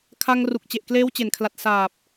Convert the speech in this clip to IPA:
kʰa˧ŋ ru˨˩k̚t͡ɕe˨˩ʔkleː˦˥w t͡ɕe˨˩nkʰla˨˩t̚ saː˨˩p̚

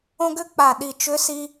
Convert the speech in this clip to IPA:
õ˧ɡʏ˧˥k͡pa˨˩ɗi˨˩ t͡ʃʏ˧˥si˧

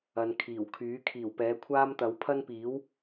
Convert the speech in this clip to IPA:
ɐ˨nkʰiː˨˩wkʰyː˨˥ kʰiː˨˩wpɛː˨˥kʷʰaː˥mt̪ɐ˨˥w pʰɐ˥npiː˨˥w

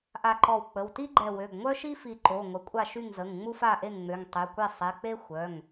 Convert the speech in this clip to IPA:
ʔa˧˩ǃɔ˧˩wk͡pə˩˧˩w ti˥ɡ͡ǃɛ˧˩wø˩˧˩ɡ ŋʷœ˥ʃi˥fi˧˩ ǃo˩˧˩ ŋʷə˩˧˩kʷʼa˥˩ʃy˥˩ŋ zə˩˧˩ŋ ŋ͡mu˥fa˥˩ʔe˥˩ŋŋ͡mø˩˧˩ŋ tˤy˩˧˩kʷe˥˩ sˤe˩˧˩k͡pe˥ xʷœ˩˧˩ŋ

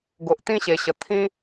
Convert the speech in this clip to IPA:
ɡo˨ʔt̪ĩ˦ɕe˨˩ɕə˨˩ t̪ʰĩ˦

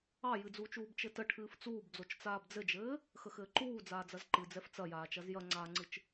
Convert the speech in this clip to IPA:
ɑjɨd͡zuːt͡ʃuːb t͡ʃɘtə ʈʰɨːft͡suːbd͡zot͡ʃ t͡saːbd͡zɘd͡ʒɘː | xəxɘːǃuː d͡zaːd͡zɐzǃɨ d͡zɛft͡sɐjaːt͡ʃɐz jɐŋ͡ǀaːŋ͡ǀɨt͡ʃ

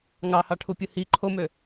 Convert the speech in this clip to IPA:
ŋɑhɑʈʰupʲɯ hi ǃʰomø

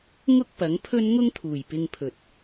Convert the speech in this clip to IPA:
ŋʊ˥k̚ pɐ˨˥ŋpʰɵ˥n ŋʊ˥ŋt̪ʰuː˨˩jpɪ˧ŋpʰɵ˨t̚

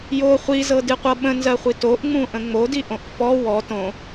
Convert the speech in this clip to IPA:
jo χʷizɤdɨqʷɤ ɓə̃nzɜχʷi toʔŋ͡mũʔə̃ ŋ͡modiʔõʔ fɔ wɔ tõ

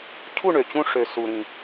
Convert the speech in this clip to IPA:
cʰu˥˩ɳø˩t͡ɕũ˧ ʂø˩ su˩ɾĩ˩

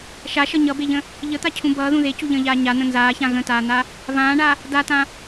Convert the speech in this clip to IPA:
ʃaʃʌ ɲʌbeʎə̃ | ʎət̪acʰũ bʌːðũ ðecuʎə̃ːʎaː ɲan̪ə̃ nzaːçã ɣə̃taːn̪a | vãːɳa | datã

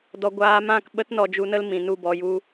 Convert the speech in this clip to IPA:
dɔ˧ ɡʷaː˧mã˦˨k ɓə˦t nɔ˧d͡ʒu˧nə˦l mĩ˨ nu˦˨bɔ˧ju˦

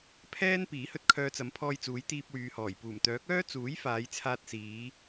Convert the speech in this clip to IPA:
pʰɛː˥n piː˨˥hɵ˥t̚kʰœː˧t͡sɐ˨˥m pʰɔː˧jt͡suː˨˥j t̪iː˧p̚wyː˨hɔː˨˩j puː˨˩mt̪œː˨˥k̚œː˥ t͡suː˨˥j faː˨˧jt͡sʰaː˧t̚siː˨˧

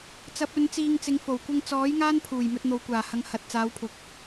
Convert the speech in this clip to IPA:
t͡sɐ˨˥p̚ɵ˨˧n t͡siː˧ŋt͡sɪ˨˧ŋfo˨˩w kʷɐ˧ŋt͡sɔː˨˥j ŋaː˥npʰuː˨˩j mɵ˧t̚n̪o˨wkʷaː˨˩hɐ˨˧ŋ hɐ˨t̚t͡saː˨˧wpʰʊ˨˥k̚

